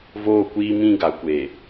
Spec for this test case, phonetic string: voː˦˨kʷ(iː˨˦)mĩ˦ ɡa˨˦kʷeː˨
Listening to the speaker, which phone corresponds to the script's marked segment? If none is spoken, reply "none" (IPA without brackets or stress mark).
iː˦